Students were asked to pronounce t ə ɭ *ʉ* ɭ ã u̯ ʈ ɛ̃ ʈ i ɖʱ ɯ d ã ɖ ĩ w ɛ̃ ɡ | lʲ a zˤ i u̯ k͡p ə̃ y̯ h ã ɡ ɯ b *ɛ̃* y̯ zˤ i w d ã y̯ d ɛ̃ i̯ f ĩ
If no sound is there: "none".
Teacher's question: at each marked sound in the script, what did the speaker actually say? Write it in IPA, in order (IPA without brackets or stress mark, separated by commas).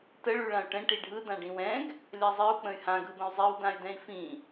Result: ʉ, ə̃